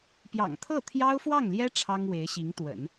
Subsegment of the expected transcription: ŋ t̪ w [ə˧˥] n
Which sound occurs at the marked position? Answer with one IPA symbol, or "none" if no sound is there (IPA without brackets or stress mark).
ə̰˨˩˦